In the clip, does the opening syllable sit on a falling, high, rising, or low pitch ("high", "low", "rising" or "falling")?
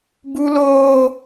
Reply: high